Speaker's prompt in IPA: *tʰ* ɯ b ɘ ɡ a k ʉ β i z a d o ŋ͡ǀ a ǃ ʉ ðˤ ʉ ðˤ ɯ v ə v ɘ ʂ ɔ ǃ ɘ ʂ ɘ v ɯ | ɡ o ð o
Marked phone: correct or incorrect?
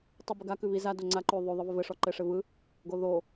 incorrect